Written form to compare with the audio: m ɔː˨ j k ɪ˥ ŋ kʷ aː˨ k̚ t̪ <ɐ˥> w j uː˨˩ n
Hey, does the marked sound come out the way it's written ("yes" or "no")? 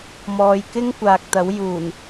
no